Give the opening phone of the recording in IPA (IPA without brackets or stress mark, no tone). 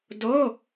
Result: d